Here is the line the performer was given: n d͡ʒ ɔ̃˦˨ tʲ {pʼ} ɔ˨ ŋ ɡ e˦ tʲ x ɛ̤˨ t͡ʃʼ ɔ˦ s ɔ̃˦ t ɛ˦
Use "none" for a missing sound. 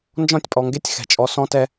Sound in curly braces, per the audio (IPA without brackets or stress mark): pʼ